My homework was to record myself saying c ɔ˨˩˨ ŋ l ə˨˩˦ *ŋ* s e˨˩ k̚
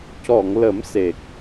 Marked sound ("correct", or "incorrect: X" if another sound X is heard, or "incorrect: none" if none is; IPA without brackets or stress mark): incorrect: m